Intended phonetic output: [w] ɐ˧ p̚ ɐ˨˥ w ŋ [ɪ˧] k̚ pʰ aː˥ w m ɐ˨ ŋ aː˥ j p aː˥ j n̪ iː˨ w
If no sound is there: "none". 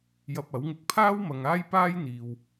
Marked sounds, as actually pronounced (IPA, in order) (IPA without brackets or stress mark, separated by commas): j, ɪ˧